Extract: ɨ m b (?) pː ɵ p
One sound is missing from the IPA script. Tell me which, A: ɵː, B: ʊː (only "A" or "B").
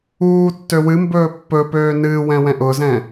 A